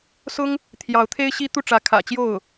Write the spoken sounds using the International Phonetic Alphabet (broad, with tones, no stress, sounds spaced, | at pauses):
s ʊ˥ ŋ | t̪ʰ j ɑ˧˥ ʊ̯ t̪ʰ e˥ ɪ̯ ɕ i˥ t̪ u˥˩ ʈ͡ʂ ä˧˥ kʰ ä̰˨˩ t͡ɕ j o˥˩ ʊ̯